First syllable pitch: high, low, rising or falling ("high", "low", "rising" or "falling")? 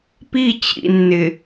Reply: falling